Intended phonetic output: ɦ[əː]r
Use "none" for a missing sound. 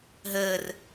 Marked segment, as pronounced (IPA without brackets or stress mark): əː